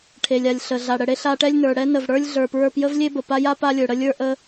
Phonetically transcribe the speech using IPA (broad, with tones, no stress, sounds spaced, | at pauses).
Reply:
ʈʰ e˩ lʲ a˩ lʲ ɬ ə˩ ɮ a˩ ɽ ə˩ ɽ e˥ ɬ a˧ ʈ ɛ˥ lʲ n ə˞˩ ɽ ɛ˥ n ə˩ v ɽ ə˞˥ lʲ ɮ ə˞˩ p ɹ ə˞˧ p j ə˥ v lʲ e˥ b ə˩ p a˥ j a˥ p a˥ lʲ ə˞˩ ɽ ə˥ lʲ ə˞˥ ʔ ə˧